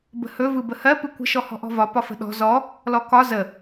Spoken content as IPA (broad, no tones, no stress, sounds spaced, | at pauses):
b ə̤ h ɵ v ɯ b ə h ɜ p ɯ kʷ ə̤ ʃ ɔ h ɔ̤ ʔ ɔ̤ v ɒ p ɒ f ə̤ ɗ ɔ̤ z ɔ | l ɔ k ɒ z ə